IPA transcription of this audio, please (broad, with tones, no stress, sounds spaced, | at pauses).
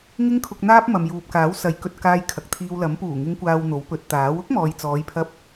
ŋ ɪ˧ ŋ kʰ ʊ˨ k̚ n̪ aː˧ p̚ m ɐ˨ m j uː˨ p̚ k aː˨˥ w s ɐ˨˥ j k ɵ˨ t̚ k aː˧ j kʰ ɐ˨ k̚ t̪ʰ iː˧ w l ɐ˨˥ m p uː˨˩ ŋ ɪ˨˧ ŋ kʷ aː˨ w n̪ o˨˥ w p ɵ˨˥ t̚ t̪ aː˨˥ w ʊ˥ k̚ m ɔː˨ j t͡s ɔː˨˧ j pʰ ɐ˧ p̚